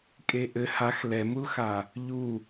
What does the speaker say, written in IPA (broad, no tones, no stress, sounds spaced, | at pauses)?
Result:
kʼ e ʔ ɘ h a x l ɛ m u l x a | ʎ u